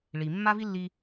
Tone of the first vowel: low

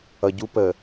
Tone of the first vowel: low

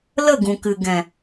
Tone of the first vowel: falling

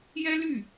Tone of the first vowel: high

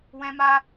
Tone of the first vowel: high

